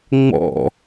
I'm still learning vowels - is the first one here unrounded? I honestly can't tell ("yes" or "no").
no